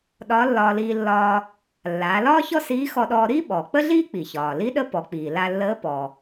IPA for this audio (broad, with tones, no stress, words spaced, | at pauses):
ɗɒː˧˥lːɒː˧liː˧lːɒː˧ | lːaː˩˧lɒː˥çɔ˥ siː˧˥xɔ˧ɗɔː˧ ɾi˥ ɓɔː˩k͡pə˥ɮiː˥ k͡pi˩çɒː˩li˧˥ɗə˧˥ pɔ˩˧k͡piː˩ la˧lːəː˧˥pɔ˩